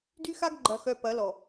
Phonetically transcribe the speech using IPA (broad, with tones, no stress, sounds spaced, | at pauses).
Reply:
d y˦ x a˦ ɡ ɡ͡ǃ ɐ˨ x œ˨ p ɐ˨˦ l ɔ˨